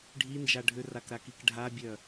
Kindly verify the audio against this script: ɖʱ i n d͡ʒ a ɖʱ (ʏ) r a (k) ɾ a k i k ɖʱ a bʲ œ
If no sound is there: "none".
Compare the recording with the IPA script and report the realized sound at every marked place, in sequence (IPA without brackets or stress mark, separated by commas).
ʏ, k